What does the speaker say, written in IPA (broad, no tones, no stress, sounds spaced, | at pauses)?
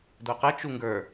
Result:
d o q ə t͡ʃ u ŋ ɡ ə˞